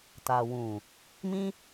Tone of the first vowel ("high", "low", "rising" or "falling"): low